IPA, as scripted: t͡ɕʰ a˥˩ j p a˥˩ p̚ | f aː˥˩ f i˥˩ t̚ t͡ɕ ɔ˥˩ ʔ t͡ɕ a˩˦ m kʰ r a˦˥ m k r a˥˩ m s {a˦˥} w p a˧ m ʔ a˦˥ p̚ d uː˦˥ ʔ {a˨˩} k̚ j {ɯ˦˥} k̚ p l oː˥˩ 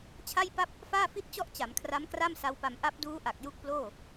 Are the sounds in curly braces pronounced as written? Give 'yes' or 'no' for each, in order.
yes, yes, no

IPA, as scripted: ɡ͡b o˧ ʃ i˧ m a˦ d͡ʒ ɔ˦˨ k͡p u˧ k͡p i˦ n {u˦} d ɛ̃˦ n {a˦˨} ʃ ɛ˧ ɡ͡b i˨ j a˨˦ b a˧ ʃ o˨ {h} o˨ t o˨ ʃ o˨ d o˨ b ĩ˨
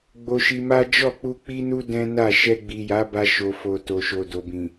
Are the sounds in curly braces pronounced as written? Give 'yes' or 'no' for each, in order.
yes, yes, no

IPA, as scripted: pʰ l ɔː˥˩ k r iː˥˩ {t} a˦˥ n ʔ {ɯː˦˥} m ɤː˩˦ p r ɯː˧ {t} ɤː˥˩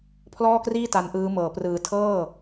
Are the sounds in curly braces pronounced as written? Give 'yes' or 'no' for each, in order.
yes, yes, no

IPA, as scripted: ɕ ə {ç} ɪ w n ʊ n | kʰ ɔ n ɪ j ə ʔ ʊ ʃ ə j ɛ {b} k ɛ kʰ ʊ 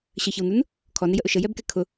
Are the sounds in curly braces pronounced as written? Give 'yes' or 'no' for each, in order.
yes, yes

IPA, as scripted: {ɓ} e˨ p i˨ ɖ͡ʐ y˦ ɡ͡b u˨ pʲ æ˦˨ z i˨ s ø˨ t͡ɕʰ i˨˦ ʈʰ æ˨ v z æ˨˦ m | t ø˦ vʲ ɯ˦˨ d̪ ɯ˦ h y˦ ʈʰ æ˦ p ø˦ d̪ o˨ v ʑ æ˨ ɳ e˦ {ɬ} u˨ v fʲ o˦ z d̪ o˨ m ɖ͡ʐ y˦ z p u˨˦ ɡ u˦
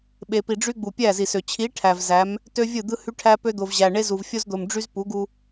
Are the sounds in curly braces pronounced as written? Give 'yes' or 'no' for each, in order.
yes, no

